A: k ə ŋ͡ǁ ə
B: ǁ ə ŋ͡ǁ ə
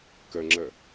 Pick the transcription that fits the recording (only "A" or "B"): A